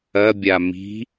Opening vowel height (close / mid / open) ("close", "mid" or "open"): open